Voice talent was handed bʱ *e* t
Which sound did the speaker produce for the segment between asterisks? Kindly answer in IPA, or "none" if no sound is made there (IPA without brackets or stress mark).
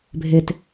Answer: e